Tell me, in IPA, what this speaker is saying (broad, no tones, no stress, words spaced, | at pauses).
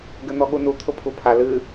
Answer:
ɡɘn̪ɔɠunu t̪ʰʊpʰupʰa lɨ